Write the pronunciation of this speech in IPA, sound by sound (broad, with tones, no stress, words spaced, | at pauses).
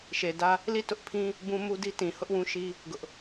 ʃe˨dä˦ | li˦˨tʊ˦ʔpʰĩ˦ | bũ˦mu˦di˦ tĩ˨hʊ˦ʔwũ˦ʃi˦ | ɡʊ˦ʔ